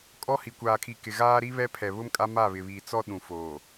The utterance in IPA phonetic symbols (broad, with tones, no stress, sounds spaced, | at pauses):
kʼ ɔ˦ h i˨ kʷ aː˨ kʰ i˨ k ɪ˨ ɣ aː˦ ɾ i˦ β ɛ˦ pʰ ɛ˨ β ʊ˦ m kʼ a˦ m a˦˨ β ɪ˨ β iː˨ t͡s ɔ˦ ɗ ũ˨ f oː˨